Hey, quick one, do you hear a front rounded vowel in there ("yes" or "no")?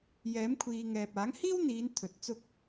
no